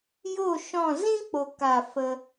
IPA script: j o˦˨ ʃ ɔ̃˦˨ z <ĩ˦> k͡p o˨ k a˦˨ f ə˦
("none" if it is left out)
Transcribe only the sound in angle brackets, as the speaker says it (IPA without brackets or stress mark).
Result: ĩ˦